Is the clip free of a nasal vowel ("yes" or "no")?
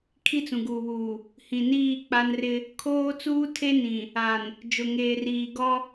no